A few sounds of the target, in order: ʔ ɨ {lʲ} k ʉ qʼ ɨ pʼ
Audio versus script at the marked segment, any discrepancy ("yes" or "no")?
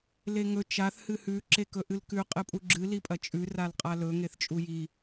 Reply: yes